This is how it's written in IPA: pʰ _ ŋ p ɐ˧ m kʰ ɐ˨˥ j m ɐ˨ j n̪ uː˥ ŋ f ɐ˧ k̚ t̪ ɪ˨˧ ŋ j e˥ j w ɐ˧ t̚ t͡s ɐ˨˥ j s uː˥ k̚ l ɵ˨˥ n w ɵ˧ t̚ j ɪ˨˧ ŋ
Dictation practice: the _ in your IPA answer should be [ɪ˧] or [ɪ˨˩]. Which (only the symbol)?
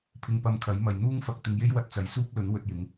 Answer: ɪ˧